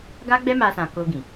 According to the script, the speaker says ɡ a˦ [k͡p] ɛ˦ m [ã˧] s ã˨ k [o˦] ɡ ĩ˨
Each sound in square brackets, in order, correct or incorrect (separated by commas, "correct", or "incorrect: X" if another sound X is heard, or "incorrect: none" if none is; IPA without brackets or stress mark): incorrect: ɡ͡b, incorrect: a˧, incorrect: o˧